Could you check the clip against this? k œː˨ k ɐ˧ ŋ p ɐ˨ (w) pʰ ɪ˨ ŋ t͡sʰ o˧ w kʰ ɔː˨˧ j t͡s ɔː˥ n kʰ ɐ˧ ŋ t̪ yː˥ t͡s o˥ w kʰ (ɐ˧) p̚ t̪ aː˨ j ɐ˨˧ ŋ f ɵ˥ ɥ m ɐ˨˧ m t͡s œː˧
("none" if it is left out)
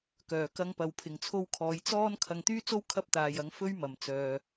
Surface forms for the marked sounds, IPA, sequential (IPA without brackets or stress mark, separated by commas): w, ɐ˧